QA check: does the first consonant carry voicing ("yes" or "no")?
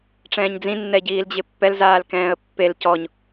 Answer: no